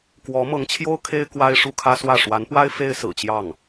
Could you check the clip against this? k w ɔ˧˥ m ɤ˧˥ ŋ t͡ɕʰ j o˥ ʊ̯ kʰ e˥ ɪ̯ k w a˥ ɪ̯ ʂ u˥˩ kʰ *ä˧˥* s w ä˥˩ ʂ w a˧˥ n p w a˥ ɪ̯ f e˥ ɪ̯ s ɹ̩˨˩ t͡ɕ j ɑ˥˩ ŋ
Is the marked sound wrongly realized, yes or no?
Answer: yes